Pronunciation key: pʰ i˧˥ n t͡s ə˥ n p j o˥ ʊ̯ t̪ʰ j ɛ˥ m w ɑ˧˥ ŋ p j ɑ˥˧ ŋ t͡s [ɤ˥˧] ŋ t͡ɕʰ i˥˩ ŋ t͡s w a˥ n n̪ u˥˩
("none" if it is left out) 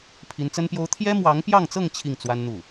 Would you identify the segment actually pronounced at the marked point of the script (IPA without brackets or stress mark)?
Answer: ɤ˥˧